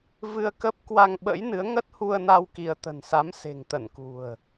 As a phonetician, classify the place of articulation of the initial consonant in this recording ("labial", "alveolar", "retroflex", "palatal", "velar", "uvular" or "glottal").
labial